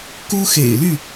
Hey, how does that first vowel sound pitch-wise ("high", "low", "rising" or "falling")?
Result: high